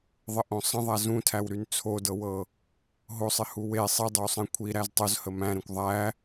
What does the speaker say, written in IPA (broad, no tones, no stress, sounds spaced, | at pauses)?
ðˤ ə ʔ õ sˤ ə̃ ðˤ æ z ũ tʰ æ w ɾ y n t͡sʰ o d ɤ w ɤ | ɦ o sˤ ɪ h u w e sˤ i dˤ ə w sˤ ɛ̃ kʷʰ i ɾ æ z tˤ o z h ə m æ̃ ɾ ɛ̃ kʷ ðˤ æ